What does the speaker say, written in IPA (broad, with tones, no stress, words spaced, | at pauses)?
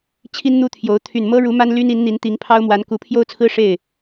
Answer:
t͡ɕʰi˥nn̪u˥t̪ʰjo˧˥ʊ̯ t̪ʰy˨˩nmɤ˥ ɻu˧˥ma˥nly˥n i˧˥nn̪i˧˥nt̪i˧˥ŋ pʰɑ˥ʊ̯mwa˧˥n ku˧˥ pʰjo˥ʊ̯t͡sʰɹ̩˥ ʂe˥˩ɪ̯